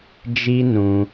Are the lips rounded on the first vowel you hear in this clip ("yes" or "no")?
no